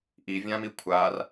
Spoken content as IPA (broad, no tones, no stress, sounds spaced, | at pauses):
ʔ i vʲ ã m i kʷʰ a r